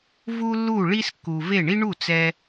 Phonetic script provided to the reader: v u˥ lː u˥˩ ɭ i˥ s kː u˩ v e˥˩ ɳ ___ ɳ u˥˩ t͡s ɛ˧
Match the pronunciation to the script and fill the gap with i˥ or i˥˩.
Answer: i˥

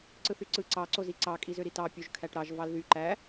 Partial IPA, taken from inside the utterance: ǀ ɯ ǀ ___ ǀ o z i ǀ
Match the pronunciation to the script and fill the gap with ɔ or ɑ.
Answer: ɑ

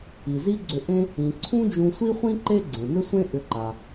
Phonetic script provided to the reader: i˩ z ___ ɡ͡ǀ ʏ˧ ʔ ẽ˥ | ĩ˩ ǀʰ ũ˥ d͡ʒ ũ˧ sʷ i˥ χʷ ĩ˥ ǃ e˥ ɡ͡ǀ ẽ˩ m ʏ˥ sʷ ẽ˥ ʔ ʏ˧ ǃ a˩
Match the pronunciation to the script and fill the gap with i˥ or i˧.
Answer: i˥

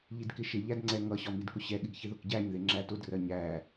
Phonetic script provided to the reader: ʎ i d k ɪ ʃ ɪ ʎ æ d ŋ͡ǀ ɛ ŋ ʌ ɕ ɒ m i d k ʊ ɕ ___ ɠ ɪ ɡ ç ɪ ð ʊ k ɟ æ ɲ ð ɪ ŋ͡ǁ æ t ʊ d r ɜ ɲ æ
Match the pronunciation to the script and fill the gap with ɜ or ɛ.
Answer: ɛ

